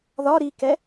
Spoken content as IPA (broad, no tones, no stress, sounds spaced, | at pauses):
ð ɒ ɾ i k ɛ